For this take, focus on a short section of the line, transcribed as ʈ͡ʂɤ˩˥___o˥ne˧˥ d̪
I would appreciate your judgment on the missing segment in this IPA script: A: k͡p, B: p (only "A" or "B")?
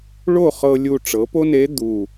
B